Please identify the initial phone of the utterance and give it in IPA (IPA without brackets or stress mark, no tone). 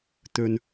t̪